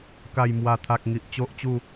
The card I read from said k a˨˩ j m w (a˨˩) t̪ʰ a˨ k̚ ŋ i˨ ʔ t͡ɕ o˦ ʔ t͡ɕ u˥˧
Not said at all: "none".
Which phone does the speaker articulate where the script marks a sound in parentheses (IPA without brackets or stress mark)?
a˨˩